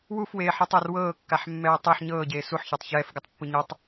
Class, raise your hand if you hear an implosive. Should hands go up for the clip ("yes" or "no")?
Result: no